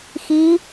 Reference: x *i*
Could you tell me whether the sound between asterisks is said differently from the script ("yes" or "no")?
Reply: no